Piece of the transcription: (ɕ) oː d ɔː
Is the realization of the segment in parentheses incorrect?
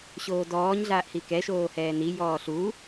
no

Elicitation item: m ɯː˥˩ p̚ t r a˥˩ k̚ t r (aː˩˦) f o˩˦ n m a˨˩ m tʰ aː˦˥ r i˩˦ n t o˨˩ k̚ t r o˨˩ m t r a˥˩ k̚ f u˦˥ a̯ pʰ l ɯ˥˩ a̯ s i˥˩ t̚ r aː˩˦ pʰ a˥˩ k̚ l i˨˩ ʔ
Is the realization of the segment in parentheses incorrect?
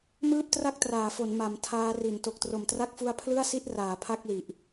no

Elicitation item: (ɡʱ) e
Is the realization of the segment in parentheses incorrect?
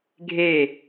no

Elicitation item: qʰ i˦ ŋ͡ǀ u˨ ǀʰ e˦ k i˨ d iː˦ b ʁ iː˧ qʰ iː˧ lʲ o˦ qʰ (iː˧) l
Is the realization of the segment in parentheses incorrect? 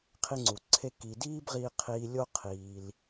no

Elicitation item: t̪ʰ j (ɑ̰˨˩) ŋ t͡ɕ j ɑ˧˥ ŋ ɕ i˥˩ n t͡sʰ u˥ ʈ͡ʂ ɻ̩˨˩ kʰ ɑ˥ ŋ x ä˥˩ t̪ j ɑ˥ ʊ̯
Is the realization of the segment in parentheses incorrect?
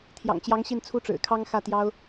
no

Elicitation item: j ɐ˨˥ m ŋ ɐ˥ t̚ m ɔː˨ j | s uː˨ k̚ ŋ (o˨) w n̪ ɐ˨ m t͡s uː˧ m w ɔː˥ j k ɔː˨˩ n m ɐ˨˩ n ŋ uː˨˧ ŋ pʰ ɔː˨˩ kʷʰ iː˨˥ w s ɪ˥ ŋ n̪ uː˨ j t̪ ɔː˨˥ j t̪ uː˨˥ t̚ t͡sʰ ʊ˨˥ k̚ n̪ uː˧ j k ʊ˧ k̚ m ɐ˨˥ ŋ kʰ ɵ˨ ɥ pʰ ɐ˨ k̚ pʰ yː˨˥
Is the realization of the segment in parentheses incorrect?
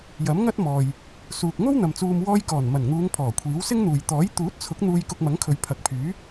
yes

